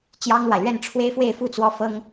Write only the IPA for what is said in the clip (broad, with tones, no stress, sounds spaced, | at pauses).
t͡ɕ j ɑ˥ ŋ l w a˨ ɪ̯ l ɥ ɛ˥˩ n ʈ͡ʂʰ w e˥ ɪ̯ f w e˥˧ ɪ̯ f u˥˩ t͡s w ɔ˥ f ɤ˥ ŋ